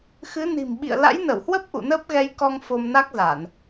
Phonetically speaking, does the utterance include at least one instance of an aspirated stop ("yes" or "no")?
no